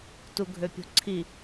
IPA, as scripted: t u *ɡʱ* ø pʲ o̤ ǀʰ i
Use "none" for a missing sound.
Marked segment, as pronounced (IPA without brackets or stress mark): ɡʱ